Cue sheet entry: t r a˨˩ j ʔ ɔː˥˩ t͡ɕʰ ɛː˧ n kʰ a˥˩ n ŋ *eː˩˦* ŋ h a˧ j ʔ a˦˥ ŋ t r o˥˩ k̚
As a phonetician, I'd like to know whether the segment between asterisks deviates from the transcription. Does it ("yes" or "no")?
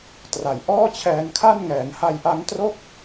yes